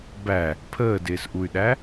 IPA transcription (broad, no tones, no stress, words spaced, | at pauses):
bæ | pʰəːdɪːsʔuy̯ɗæ